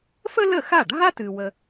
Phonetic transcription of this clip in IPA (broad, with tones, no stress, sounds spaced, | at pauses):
f ə˥ l ə˥˩ x a˥˩ ɖʱ a˥ t ɨ˧ w ə˧